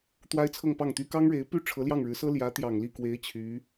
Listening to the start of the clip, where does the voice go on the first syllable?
high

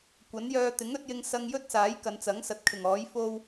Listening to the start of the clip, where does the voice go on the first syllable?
rising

